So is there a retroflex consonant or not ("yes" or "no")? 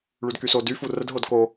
yes